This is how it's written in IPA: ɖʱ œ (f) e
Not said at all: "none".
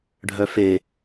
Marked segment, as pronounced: f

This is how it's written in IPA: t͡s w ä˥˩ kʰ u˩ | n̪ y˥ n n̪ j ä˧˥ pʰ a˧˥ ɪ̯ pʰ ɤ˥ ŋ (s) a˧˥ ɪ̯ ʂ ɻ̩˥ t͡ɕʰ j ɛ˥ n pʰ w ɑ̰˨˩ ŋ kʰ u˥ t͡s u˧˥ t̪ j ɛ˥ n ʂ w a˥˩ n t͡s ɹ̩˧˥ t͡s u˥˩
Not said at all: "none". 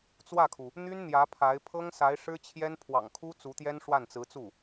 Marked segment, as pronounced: s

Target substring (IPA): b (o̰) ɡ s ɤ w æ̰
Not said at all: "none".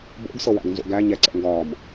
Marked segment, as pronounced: o̰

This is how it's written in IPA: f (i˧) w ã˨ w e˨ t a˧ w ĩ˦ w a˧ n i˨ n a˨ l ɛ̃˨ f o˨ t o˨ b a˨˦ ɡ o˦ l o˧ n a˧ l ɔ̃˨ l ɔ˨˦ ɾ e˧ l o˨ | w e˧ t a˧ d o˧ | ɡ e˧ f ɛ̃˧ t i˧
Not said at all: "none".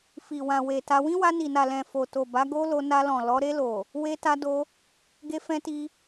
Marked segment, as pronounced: i˨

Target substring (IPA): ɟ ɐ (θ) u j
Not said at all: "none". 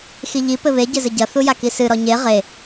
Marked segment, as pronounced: θ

